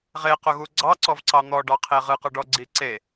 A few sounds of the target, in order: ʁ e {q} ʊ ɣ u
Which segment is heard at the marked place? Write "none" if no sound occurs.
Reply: q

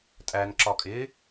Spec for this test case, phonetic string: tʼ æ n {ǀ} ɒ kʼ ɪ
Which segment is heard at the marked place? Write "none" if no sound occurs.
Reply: ǁ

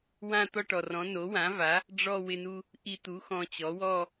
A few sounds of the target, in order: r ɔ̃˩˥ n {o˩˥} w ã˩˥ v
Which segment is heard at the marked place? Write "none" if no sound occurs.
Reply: o˩˥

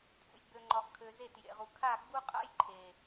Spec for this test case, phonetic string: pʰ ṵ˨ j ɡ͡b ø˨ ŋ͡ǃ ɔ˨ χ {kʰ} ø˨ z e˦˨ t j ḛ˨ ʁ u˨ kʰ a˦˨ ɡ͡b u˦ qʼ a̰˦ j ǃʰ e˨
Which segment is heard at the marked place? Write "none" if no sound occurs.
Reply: kʰ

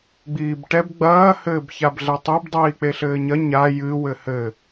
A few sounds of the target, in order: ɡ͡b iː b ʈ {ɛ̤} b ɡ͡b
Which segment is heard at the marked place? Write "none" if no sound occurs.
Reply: ɛ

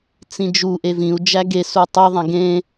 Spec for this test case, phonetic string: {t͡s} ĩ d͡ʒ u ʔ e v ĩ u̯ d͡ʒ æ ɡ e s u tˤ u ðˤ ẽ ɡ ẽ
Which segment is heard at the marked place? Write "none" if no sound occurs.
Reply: t͡s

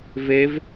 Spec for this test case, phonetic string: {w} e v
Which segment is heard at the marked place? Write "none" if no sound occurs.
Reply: v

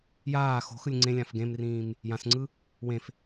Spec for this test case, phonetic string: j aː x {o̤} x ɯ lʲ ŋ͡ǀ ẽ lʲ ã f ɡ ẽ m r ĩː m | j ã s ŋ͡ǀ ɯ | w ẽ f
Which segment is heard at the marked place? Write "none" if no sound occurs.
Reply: o̤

